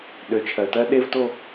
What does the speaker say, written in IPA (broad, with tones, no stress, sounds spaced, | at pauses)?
ɗ ø˨ t͡ʃʰ ɜ˨ t ɜ˦ ɗ e˦ v t o˦